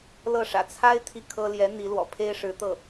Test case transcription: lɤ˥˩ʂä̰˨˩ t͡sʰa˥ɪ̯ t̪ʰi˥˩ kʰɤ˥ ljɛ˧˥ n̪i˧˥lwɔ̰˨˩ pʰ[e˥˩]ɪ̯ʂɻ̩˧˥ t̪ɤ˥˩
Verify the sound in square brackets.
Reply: incorrect: e˥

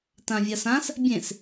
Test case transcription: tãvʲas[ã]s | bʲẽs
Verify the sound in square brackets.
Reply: correct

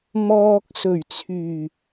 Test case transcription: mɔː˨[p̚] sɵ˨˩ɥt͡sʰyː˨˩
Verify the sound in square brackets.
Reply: incorrect: k̚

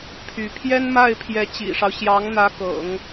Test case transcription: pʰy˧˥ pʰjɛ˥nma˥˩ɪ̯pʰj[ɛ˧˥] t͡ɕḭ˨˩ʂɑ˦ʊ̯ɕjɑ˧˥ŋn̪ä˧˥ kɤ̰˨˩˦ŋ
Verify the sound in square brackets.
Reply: correct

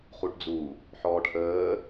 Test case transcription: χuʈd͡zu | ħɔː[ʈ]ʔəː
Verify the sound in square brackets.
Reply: correct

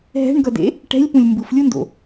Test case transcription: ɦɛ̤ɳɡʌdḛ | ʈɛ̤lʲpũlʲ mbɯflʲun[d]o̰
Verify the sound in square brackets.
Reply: correct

